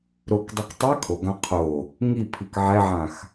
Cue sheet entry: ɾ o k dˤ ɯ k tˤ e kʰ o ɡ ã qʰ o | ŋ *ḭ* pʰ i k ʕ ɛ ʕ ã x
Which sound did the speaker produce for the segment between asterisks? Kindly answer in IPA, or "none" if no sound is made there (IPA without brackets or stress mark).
i